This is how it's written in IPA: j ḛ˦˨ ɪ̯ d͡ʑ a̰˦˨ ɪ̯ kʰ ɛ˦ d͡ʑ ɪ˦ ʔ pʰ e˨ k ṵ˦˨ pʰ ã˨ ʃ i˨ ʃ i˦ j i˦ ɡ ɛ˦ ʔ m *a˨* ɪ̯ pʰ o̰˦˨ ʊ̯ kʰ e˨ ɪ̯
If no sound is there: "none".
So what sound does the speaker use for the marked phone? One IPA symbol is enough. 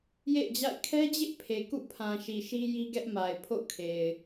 a˨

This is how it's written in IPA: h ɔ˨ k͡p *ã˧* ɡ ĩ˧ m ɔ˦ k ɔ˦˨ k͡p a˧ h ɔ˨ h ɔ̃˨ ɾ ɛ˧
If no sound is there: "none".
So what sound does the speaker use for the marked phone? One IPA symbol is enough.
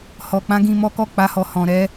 ã˧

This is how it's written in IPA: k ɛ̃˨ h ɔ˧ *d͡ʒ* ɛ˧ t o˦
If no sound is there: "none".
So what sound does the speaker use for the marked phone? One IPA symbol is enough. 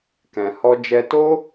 d͡ʒ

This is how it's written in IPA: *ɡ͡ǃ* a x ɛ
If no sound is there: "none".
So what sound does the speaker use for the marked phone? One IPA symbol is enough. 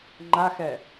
ŋ͡ǃ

